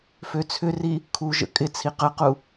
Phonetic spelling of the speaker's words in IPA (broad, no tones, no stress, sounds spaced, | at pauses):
f ø t͡sʰ ʏ r i | kʰ u ʒ ə̰ kʼ ɪ t͡sʰ i q ə q u